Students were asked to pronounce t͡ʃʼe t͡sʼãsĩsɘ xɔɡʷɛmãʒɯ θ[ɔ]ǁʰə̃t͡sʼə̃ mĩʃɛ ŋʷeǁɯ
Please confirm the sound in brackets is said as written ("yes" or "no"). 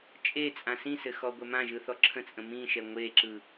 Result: yes